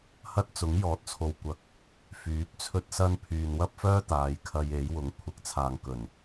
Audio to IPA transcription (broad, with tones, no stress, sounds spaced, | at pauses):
h ɐ˥ t̚ t͡s ʊ˨˥ ŋ j ɔː˨˥ t̚ t͡sʰ o˨ w kʷ ɐ˨ k̚ | f yː˨˥ p̚ t͡sʰ ɵ˥ t̚ s ɐ˥ n pʰ yː˨ n w ɐ˥ p̚ f œː˥ t̪ aː˨˧ j kʰ ɐ˧ j e˨˥ j w ʊ˨˥ ŋ kʷʰ ɪ˨˥ k̚ t͡sʰ aː˨ ŋ k ɵ˨˩ n